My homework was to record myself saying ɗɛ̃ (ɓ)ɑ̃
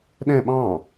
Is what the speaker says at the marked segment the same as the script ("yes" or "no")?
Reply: yes